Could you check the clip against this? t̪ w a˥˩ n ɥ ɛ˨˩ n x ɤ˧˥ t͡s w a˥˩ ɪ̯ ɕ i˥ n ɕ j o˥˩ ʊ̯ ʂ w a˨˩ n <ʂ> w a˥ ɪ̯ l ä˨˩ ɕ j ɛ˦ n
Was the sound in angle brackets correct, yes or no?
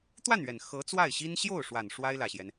yes